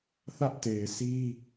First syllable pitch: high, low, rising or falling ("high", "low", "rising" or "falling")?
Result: high